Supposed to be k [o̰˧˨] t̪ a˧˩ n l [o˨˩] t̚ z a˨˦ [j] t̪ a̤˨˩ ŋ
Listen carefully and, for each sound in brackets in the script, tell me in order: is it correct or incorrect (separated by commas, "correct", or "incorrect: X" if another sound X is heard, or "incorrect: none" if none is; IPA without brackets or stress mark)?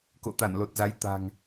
correct, correct, correct